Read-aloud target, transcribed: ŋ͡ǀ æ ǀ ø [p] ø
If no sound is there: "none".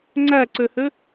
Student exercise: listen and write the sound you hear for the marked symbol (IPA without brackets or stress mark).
h